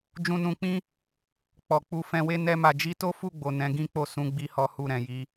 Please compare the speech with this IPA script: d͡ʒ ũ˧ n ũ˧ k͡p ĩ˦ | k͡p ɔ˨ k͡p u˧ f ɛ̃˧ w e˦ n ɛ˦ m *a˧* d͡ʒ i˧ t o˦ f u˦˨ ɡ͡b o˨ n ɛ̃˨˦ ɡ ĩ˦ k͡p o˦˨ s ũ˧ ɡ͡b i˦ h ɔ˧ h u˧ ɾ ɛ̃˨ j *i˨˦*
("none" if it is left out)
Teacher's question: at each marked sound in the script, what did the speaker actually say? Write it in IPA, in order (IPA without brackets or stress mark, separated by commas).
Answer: a˧, i˨˦